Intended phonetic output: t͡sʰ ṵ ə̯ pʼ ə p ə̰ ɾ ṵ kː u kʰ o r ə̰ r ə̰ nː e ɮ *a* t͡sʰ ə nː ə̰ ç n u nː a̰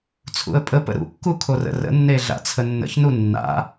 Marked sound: incorrect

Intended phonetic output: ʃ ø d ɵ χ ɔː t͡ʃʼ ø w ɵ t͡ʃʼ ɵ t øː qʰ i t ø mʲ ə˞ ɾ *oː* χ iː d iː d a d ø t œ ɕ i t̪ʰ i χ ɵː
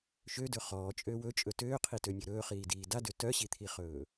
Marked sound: incorrect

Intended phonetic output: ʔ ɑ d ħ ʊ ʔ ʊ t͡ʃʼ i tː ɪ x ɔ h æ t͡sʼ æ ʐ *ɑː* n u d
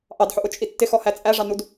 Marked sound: incorrect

